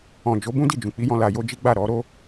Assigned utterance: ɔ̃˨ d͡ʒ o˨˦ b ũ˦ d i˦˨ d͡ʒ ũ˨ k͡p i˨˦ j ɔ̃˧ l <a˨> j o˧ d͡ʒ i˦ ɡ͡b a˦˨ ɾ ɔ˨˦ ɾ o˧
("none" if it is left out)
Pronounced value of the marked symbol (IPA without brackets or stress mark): a˨